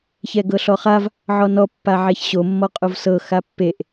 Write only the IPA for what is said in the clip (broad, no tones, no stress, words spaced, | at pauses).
çɛɡɤɬɔχav | ʕɔnɔ pːaʕɛçɕo mːɔqʼovsɤ xapːeʔ